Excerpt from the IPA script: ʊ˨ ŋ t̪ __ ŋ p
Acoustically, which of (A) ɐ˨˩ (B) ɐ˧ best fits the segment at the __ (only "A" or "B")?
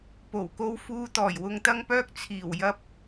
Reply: B